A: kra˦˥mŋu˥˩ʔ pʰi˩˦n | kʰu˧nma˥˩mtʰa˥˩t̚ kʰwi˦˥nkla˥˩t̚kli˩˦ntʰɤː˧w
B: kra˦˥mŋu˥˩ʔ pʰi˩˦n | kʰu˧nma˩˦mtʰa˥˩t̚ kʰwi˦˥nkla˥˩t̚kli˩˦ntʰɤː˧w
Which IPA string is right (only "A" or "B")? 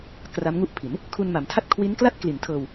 B